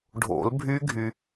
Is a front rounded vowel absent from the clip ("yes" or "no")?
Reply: no